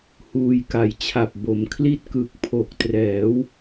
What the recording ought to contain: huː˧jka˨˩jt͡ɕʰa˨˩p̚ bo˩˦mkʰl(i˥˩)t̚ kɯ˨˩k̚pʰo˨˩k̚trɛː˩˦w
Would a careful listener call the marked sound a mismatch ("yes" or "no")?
no